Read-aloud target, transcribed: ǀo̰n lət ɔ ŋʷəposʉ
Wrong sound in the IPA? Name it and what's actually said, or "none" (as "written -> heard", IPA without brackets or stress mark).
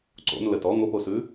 none